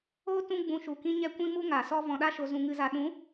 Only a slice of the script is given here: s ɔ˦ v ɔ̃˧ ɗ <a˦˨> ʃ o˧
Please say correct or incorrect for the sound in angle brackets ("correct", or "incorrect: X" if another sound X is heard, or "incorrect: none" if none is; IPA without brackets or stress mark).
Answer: incorrect: a˦